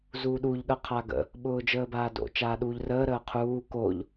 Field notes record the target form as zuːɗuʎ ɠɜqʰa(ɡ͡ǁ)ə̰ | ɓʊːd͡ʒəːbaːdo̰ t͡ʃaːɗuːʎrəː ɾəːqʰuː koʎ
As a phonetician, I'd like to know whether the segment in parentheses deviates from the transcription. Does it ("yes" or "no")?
yes